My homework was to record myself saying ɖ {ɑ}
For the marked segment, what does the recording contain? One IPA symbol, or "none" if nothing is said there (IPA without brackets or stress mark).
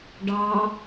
ɑ